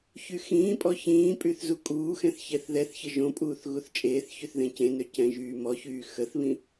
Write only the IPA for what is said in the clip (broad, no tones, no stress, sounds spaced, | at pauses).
ç y x ĩː pʼ ɔ ç ĩː pʼ y θ z u kʼ uː x ɛ̃ θ ç ɛ θ ð ɛ θ ç ə ʒ õ pʼ uː θ ɣ u θ t͡ʃʼ eː θ ç y θ ð ẽ c ẽ n ø c ɛ̃ ʒ yː m ɔ ç yː x ə θ β ĩ